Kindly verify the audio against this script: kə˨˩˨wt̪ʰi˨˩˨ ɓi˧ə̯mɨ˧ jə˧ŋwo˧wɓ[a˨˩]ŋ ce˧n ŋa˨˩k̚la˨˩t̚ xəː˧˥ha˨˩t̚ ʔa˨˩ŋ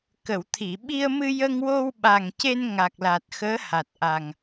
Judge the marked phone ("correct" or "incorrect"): correct